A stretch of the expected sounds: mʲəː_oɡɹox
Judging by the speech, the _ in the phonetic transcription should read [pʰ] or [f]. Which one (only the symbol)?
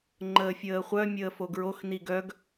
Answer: f